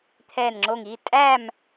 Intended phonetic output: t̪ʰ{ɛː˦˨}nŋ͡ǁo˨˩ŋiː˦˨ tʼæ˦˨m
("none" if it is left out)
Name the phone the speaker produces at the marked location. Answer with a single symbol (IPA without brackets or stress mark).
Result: ɛː˨˩